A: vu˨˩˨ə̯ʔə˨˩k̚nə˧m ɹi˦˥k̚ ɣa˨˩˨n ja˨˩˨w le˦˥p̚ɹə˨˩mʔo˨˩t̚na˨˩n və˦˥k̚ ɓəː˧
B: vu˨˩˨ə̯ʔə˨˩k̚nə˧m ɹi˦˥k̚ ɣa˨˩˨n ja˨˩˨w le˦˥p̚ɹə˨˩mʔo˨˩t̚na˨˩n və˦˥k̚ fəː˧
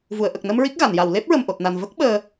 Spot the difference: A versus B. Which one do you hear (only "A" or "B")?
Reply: A